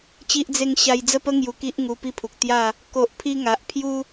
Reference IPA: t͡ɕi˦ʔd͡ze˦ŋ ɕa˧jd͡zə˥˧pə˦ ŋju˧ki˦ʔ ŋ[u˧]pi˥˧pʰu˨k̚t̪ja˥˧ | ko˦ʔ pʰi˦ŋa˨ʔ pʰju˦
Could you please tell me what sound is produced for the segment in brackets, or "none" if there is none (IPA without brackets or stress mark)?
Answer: u˧